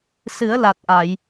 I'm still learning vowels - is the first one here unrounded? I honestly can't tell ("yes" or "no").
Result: yes